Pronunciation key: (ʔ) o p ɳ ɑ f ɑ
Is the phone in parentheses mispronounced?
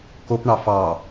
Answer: yes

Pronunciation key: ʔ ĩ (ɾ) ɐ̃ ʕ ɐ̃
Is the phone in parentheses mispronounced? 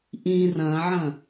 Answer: yes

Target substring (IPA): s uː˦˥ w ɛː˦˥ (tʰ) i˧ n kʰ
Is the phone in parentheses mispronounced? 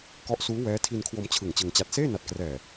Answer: no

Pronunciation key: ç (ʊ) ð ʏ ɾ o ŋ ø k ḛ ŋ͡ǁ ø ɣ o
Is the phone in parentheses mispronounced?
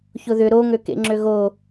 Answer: no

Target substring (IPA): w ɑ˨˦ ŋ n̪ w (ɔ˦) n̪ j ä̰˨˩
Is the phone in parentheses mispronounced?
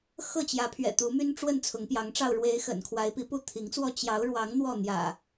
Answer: yes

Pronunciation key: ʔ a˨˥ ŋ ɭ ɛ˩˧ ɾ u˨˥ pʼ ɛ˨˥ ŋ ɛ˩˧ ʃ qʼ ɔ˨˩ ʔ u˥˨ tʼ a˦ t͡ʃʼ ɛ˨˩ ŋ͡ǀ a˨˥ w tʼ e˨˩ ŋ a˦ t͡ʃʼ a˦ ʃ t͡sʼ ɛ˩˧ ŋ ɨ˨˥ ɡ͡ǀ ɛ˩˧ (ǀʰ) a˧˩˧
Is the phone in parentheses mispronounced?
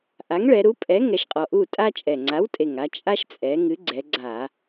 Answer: yes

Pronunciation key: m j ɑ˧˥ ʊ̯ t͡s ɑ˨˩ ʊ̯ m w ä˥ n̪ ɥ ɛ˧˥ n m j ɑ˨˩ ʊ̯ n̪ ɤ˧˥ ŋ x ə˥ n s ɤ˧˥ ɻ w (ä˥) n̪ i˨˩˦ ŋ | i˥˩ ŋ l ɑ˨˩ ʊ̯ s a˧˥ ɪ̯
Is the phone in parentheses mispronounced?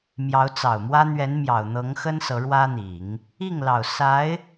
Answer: no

